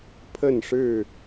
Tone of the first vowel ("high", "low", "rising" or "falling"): falling